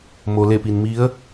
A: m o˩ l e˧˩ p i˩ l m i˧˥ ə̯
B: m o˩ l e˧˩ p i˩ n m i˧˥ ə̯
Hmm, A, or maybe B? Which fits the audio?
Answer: B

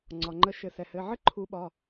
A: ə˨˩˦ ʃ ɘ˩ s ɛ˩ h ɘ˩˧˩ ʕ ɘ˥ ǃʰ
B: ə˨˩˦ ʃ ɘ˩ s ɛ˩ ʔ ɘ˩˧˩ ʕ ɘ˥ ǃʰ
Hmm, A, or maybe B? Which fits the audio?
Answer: A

